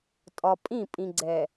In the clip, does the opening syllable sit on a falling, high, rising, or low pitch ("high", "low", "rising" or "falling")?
low